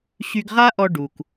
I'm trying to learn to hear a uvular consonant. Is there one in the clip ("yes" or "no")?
yes